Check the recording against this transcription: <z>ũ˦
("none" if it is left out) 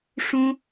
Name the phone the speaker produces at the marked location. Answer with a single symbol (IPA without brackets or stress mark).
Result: ʂ